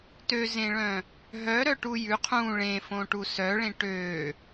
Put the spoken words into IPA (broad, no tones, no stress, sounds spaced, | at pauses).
t ø z ẽ ɭ œ̃ | ɦ œ ɾ œ ʈ u j ʉ qʰ ũ ɭ ẽ f õ ʈ u s œ ɭ ẽ ʈ ø